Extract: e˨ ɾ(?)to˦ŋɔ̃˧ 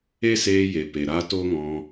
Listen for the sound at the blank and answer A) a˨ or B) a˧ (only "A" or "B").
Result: B